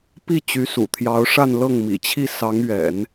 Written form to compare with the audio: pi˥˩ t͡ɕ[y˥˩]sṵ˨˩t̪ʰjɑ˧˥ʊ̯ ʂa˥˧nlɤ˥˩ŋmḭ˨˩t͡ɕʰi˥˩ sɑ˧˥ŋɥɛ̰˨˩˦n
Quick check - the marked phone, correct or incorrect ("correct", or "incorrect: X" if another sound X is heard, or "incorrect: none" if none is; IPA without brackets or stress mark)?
incorrect: y˧˥